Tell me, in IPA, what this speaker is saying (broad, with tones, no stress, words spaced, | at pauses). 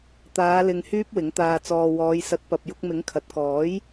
t̪aː˨˧lɪ˨ŋ hyː˥p̚wɪ˨˥ŋt̪aː˧t͡sɔː˧ wɔː˨˧jsɐ˨˥t̚ pɐ˨p̚jʊ˧k̚mɪ˨˥ŋ kʰɐ˨t̚kɔː˨˥j